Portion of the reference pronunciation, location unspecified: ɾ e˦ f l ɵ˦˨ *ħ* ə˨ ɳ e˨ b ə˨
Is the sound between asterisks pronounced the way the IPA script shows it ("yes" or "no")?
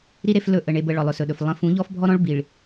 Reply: no